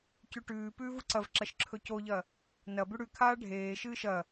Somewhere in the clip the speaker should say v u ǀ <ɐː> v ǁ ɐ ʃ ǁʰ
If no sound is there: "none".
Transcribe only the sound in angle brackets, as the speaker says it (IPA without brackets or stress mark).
ɐ